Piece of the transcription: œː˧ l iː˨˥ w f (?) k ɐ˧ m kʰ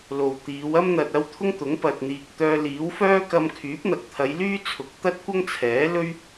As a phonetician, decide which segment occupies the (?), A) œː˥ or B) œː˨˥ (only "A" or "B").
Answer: A